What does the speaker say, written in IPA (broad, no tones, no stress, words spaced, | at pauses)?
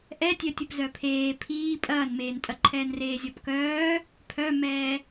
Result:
ʔɛtʲœ tʲupzœpʰeː pʰiː pʼɐːnmeːntʼɐ ǃʰɛːnreːzʲɒpkœː | pʰœmɛː